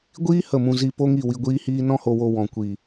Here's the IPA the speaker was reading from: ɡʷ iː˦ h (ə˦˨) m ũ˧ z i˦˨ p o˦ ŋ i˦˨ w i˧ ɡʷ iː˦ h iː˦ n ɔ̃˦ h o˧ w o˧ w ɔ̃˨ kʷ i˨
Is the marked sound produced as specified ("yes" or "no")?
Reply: yes